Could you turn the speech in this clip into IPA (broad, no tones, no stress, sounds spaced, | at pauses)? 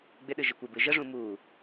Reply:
ɡ͡b ɪ ɗ ɨ ʒ ɪ kʷ ɪ b ɨ ʒ ə ʐ ũ m u